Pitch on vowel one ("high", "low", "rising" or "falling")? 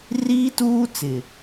high